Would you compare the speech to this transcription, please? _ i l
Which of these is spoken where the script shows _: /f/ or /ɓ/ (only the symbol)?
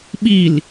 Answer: ɓ